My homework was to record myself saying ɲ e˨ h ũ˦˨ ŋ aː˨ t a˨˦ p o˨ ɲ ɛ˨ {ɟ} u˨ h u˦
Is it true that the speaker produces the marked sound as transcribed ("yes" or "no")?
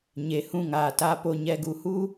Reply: no